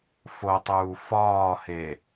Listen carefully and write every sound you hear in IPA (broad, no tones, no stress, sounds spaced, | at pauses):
f o tˤ uː f ɒː h e